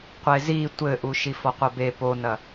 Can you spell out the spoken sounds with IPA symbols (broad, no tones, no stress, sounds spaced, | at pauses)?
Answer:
qʷ e z i tʷ ɘ ʔ u ʃ i f ɔ qʷ ɐ b e p o n ɐ